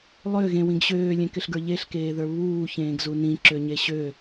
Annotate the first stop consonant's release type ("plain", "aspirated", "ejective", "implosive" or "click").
plain